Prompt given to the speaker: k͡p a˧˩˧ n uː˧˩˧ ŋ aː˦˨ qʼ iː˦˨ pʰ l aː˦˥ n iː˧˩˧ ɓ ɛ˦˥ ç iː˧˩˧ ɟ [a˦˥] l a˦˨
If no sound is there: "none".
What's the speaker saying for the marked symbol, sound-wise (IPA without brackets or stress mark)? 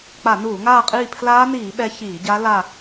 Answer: a˦˥